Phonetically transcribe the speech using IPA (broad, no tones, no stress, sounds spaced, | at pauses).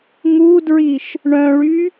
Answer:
ŋ u d ɹ i ʃ | ɳ œ̃ ɭ y